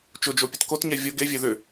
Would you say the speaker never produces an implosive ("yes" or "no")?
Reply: yes